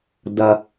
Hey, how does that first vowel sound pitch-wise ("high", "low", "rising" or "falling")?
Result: low